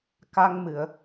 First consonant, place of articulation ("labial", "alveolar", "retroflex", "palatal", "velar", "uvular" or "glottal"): velar